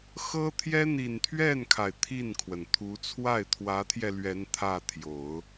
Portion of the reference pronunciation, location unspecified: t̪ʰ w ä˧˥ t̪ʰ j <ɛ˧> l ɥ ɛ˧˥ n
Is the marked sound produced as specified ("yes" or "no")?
yes